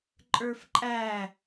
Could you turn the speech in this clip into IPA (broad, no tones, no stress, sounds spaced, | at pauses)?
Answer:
ǃʼ ə˞ f ǃʼ æ